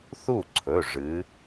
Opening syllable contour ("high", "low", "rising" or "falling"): falling